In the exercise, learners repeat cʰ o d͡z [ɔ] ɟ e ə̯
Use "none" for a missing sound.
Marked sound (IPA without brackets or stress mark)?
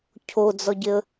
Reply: ɔ